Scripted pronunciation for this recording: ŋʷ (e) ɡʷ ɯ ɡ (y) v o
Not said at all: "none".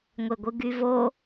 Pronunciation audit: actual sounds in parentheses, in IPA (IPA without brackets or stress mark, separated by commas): e, y